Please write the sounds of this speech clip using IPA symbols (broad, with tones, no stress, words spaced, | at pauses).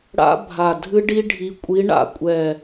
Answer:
ɽa̰˦˥ bʱa˨˩ dʱɨ˦˥ɖi˦˥ ɖʱi˨˦kʷʼi˨˦ ɳa̰˦˨kʷʼɛ˦˨